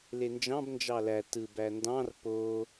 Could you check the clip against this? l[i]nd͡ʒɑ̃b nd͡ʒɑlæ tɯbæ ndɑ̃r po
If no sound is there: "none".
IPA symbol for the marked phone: e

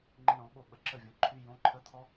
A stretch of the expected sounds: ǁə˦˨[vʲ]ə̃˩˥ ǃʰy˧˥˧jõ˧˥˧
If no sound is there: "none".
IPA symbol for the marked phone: vʲ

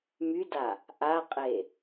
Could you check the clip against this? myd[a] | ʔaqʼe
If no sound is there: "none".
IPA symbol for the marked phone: a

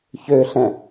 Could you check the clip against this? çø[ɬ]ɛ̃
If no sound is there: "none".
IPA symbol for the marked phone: ɬ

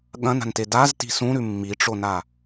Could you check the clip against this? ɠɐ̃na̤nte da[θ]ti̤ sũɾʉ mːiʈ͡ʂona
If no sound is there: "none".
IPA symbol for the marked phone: z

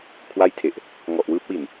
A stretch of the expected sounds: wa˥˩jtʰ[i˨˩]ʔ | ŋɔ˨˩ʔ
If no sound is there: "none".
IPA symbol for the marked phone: e˨˩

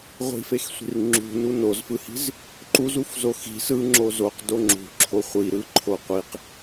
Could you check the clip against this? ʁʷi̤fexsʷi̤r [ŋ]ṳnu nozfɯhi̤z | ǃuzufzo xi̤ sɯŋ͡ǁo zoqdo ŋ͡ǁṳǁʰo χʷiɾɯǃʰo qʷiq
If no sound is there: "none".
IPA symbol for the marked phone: ŋ͡ǁ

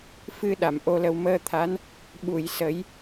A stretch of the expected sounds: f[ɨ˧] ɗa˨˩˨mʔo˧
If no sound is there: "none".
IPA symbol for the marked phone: ɨ˧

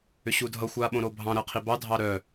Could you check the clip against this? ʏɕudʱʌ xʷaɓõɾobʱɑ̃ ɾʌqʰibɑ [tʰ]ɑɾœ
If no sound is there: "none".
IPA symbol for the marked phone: dʱ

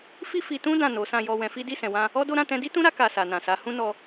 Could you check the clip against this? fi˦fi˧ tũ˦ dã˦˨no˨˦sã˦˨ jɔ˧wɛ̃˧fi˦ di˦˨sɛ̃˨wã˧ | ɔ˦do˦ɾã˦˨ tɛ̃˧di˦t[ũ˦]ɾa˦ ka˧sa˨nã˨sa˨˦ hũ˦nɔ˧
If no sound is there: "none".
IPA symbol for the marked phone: ũ˦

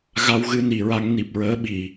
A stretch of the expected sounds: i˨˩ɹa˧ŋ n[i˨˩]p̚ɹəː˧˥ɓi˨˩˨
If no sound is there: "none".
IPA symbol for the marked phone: i˨˩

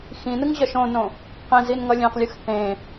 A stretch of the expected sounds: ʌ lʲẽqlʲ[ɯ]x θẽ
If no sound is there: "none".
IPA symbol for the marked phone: ɯ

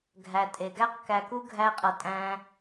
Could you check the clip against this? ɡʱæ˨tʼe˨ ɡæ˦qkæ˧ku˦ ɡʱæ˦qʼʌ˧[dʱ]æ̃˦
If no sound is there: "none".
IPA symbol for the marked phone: tʼ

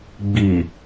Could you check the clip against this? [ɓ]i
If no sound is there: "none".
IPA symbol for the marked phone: ɡ͡b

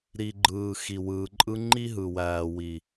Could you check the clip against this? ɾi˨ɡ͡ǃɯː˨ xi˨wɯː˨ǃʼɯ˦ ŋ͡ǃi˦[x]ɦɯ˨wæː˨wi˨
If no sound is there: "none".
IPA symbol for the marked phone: none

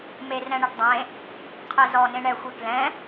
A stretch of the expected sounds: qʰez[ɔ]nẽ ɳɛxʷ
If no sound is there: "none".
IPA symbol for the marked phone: ɔ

